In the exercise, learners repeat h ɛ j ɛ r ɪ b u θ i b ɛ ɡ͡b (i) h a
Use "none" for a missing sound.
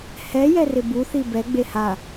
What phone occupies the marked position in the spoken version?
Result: e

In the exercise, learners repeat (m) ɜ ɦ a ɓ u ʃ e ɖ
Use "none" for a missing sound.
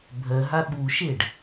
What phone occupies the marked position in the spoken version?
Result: bʱ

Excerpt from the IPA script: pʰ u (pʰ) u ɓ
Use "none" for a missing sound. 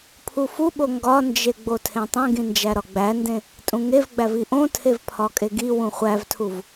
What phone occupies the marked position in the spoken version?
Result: f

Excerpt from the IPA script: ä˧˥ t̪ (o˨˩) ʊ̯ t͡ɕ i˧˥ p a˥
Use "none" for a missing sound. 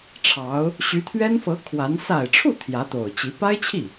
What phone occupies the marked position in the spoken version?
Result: o˨˩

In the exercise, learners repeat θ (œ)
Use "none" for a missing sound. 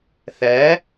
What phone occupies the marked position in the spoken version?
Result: æ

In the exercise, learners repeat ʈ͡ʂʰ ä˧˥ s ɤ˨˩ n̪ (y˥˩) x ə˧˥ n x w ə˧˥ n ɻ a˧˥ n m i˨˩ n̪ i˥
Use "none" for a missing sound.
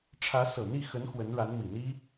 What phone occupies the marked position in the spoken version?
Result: i˥˩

